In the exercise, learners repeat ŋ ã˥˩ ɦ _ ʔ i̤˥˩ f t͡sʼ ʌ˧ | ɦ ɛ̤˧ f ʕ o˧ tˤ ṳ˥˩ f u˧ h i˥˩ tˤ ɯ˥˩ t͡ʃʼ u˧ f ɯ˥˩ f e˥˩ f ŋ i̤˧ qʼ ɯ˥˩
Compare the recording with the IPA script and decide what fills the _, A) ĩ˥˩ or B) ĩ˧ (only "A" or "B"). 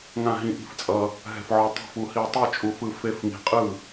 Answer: B